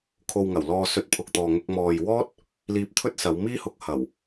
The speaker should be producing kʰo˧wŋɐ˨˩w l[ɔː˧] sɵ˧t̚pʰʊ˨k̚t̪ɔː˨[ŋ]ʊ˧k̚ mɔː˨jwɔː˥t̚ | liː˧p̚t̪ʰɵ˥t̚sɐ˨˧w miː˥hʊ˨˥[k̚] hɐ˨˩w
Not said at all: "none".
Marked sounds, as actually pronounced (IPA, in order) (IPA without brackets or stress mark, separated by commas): ɔː˧, ŋ, k̚